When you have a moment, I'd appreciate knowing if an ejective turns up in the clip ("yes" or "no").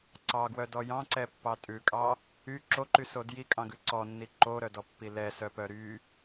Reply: yes